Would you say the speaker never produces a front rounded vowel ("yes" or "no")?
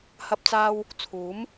yes